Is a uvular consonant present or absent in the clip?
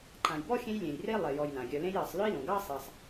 absent